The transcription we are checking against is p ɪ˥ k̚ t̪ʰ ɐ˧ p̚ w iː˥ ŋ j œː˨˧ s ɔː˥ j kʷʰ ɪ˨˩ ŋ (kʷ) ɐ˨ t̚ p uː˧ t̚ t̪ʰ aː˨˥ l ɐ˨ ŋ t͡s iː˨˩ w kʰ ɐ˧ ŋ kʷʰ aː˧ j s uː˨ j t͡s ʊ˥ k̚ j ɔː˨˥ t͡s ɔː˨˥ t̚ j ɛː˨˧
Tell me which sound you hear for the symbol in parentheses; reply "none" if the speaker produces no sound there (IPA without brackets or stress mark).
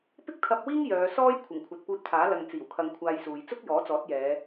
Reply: kʷʰ